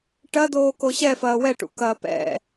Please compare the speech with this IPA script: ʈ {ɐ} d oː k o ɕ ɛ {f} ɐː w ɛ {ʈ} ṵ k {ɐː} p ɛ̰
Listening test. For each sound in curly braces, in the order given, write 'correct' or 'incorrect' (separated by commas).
correct, correct, correct, correct